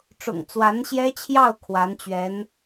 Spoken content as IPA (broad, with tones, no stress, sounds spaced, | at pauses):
ʈ͡ʂ ʊ̰˨˩ ŋ t͡s w a˧˥ n ɕ j ɛ˥ t͡ɕʰ j ɑ˥˩ ʊ̯ kʰ w a˧˥ n t͡ɕ ɥ ɛ˧˥ n